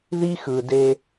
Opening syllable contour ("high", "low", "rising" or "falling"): high